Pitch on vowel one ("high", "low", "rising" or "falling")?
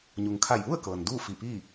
low